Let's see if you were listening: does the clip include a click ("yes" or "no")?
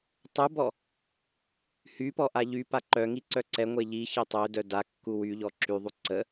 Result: yes